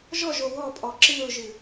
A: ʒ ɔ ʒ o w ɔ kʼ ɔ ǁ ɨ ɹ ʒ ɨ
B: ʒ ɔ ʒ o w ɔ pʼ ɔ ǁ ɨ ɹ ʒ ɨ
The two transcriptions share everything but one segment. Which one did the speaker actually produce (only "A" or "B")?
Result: B